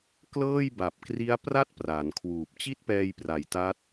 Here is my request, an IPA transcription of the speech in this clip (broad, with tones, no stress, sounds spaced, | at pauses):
k l ɤː˥˩ j b a˨˩ p̚ k r i˦˥ a̯ p r a˥˩ t̚ p r a˩˦ n kʰ w uː˨˩ p̚ t͡ɕ i˥˩ t̚ p ɛː˧ j p r a˨˩ j t a˦˥ t̚